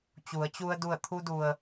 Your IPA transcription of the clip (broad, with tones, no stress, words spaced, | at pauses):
t͡ɕu˩˧ə̯t͡ɕu˧ə̯ du˧˩ə̯t̪ʰu˧du˩ə̯